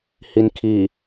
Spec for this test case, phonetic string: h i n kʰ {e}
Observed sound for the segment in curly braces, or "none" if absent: i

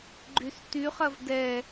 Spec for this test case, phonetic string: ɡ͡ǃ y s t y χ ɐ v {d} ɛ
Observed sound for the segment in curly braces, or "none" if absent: d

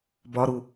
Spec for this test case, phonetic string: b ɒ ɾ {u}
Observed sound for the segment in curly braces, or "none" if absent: u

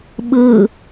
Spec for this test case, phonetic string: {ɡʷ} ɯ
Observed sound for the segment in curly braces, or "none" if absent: ɓ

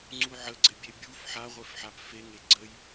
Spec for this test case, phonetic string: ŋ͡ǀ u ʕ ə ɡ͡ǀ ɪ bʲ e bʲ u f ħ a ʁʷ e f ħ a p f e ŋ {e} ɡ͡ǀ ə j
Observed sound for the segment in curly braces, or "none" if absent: e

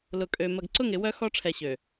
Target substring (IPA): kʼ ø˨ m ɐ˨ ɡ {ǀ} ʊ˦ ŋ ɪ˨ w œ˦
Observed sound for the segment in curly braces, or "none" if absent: ǀ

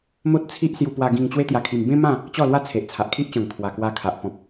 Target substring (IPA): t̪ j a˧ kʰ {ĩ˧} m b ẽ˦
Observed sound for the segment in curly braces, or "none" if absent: i˧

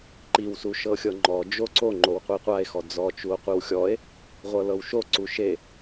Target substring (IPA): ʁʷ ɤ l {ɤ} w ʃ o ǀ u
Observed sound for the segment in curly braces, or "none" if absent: ɤ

